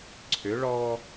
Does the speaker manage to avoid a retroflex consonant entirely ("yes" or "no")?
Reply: no